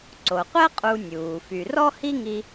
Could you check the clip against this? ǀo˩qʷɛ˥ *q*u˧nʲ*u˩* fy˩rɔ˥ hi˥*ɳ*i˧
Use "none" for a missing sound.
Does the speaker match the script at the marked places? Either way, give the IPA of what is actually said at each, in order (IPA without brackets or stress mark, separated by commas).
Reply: qʼ, uː˩, ŋ